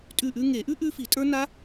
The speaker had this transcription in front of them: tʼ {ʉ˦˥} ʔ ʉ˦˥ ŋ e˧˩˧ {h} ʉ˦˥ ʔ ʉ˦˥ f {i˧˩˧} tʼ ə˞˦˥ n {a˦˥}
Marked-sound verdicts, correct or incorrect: incorrect, incorrect, correct, correct

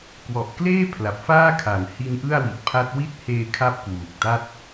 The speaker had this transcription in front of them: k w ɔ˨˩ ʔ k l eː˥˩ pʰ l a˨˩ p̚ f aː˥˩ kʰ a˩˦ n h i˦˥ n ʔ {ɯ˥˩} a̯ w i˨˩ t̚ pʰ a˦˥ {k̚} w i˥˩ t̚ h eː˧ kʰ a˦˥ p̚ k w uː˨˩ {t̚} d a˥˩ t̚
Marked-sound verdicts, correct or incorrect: correct, incorrect, incorrect

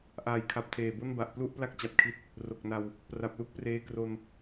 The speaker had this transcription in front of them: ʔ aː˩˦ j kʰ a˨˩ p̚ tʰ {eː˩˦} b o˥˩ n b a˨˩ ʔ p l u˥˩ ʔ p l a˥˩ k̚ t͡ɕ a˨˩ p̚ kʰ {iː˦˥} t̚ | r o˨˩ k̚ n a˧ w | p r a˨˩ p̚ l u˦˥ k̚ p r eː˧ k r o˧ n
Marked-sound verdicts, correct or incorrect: incorrect, incorrect

